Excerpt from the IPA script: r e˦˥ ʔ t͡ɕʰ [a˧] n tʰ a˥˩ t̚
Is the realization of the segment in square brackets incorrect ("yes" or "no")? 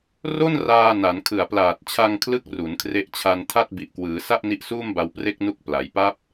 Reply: no